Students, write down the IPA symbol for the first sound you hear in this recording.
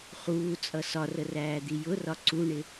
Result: χ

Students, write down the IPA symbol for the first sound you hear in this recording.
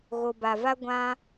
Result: ɣ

